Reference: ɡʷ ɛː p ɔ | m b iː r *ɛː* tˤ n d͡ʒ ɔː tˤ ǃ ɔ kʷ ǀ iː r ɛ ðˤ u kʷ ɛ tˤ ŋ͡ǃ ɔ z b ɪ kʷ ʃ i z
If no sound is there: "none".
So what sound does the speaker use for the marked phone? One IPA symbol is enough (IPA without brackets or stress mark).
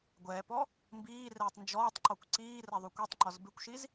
ɛː